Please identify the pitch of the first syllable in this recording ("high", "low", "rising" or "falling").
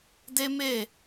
high